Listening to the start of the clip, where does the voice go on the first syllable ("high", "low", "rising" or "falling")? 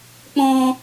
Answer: high